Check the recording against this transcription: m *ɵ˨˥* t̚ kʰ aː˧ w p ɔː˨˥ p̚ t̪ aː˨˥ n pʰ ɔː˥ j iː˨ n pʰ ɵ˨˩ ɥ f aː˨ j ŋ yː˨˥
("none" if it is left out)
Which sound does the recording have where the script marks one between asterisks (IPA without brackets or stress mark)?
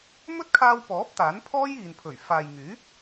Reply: ɵ˥